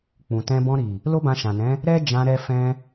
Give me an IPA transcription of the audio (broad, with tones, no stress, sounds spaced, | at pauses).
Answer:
k͡p ũ˨ t ɛ̃˧ b ɔ̃˧ ɾ i˨ | l o˦ b ã˧ ʃ ã˨ n ɛ̃˨˦ | ɾ ɛ˦ d͡ʒ ã˧ ɾ ɛ˧ f ɛ̃˧